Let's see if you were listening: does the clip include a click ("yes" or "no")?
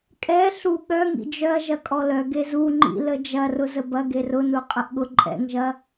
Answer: yes